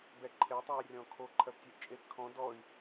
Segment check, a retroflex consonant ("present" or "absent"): absent